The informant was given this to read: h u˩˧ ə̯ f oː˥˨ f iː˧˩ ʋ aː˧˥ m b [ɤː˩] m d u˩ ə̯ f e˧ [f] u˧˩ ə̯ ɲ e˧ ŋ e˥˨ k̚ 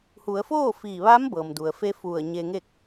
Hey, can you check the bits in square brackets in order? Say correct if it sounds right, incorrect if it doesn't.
correct, correct

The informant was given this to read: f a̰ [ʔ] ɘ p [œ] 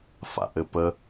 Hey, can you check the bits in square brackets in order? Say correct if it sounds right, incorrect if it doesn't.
correct, incorrect

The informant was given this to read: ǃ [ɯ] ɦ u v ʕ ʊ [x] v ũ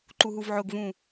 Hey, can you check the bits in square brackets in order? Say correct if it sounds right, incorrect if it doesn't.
incorrect, incorrect

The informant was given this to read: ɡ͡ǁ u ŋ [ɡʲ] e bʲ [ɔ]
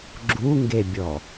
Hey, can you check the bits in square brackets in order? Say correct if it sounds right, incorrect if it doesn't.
incorrect, correct

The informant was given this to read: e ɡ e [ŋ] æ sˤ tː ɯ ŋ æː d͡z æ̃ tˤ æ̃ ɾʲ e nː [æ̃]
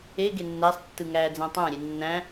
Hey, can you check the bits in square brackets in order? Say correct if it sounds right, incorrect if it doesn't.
incorrect, correct

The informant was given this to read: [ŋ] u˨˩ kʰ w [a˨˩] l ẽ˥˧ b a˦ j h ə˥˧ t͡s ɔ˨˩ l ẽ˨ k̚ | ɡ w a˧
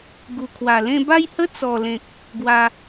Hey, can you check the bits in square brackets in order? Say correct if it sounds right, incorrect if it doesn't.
incorrect, correct

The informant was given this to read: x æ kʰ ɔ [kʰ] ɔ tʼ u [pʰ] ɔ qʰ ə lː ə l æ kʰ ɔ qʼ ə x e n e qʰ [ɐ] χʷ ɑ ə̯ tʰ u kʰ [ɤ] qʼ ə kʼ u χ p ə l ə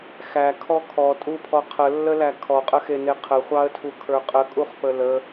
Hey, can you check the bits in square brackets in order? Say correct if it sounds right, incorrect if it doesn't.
correct, correct, incorrect, incorrect

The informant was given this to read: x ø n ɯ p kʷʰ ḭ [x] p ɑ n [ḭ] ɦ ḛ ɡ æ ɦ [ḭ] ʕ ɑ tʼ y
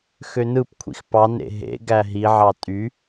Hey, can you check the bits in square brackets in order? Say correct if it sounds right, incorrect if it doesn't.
correct, incorrect, incorrect

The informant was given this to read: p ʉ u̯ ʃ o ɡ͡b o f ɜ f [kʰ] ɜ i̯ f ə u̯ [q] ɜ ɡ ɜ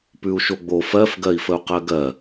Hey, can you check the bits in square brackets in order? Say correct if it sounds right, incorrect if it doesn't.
incorrect, correct

